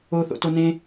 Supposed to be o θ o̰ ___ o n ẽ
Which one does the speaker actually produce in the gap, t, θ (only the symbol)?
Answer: t